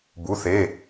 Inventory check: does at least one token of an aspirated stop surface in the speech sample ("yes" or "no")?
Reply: no